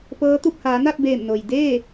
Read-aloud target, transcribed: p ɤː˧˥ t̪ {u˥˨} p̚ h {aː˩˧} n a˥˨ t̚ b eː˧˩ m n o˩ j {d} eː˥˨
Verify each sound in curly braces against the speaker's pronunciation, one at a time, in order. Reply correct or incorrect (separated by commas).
correct, correct, correct